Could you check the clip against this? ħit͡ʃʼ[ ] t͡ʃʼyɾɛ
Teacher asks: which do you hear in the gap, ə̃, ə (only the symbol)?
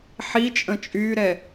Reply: ə̃